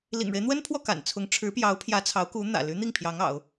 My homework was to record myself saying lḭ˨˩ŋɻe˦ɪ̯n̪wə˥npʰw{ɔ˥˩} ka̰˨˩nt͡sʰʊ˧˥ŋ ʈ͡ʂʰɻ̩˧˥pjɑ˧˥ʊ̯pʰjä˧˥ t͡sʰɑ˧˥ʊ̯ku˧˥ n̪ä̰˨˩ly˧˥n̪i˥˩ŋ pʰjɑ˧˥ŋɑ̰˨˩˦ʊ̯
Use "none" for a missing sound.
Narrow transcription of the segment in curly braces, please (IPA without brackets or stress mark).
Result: ɔ˥˩